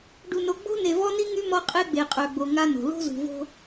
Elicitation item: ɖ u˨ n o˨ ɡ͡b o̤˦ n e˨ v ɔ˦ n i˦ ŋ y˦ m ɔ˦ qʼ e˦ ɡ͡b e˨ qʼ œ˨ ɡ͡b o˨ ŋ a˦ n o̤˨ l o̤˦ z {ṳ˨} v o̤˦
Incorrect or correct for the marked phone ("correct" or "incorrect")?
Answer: correct